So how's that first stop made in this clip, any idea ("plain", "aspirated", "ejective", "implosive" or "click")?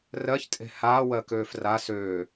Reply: ejective